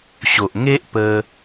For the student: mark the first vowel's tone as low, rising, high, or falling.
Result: low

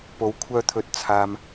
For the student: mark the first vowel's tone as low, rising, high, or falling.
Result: rising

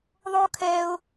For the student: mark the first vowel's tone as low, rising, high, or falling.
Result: high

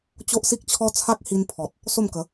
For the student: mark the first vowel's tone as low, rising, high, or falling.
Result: high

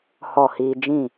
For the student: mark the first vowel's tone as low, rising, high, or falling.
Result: falling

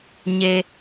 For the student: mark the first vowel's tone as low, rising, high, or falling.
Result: high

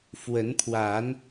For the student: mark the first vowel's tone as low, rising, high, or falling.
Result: rising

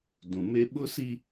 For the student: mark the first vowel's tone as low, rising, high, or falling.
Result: low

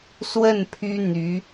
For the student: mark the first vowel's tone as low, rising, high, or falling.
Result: falling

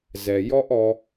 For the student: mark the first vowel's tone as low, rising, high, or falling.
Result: low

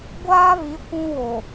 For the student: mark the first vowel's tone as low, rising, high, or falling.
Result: high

